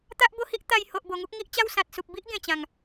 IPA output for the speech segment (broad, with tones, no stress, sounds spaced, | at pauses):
t̪ a˦ ʔ b o˥˧ h i˦ ʔ t̪ a˧ j h o˨ ʔ b o˨˩ ŋ u˦ k̚ ŋ i˦ ʔ t͡ɕ a˥˧ w s ã˨ t̚ s u˨ p̚ b i˦ ʔ ɡ ẽ˨˩ t͡ɕ ã˨˩ ŋ